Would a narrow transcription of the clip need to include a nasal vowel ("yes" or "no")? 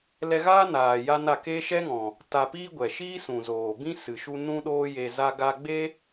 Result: yes